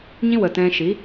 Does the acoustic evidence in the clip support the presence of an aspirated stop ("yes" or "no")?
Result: no